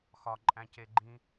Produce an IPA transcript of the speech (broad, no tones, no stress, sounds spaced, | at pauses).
x ɒ ǃʼ æ̃ c e ɡ͡ǃ ĩ